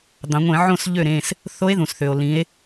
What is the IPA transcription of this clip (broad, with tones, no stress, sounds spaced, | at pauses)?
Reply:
d̪ ɑ̃˩˧ ŋʷ ẽ˧˩˧ ʕ õ˥˨ s ʎ ø˥˨ ɾ ẽ˩˧˩ s | θ o˧˥ e̯ ð ũ˩ s θ ø˩ o̯ l ĩ˩˧ e̯